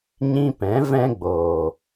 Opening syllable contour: high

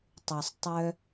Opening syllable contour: low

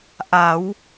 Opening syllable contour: rising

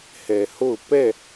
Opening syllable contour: low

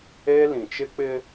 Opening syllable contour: high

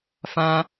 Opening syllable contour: high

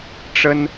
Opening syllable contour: high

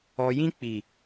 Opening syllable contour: low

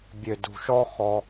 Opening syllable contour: low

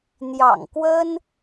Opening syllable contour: low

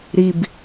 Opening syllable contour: low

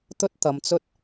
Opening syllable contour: high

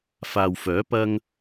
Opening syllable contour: low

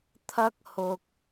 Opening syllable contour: high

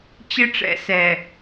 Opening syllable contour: high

